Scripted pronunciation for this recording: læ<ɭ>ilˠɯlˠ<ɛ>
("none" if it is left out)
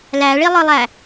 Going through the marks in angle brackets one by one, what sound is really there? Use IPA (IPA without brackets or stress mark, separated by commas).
ɭ, æ